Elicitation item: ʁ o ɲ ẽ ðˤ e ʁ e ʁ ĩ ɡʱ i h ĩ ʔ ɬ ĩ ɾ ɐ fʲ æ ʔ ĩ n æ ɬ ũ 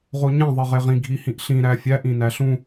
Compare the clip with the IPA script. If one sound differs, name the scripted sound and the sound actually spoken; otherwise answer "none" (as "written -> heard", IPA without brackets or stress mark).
ɐ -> æ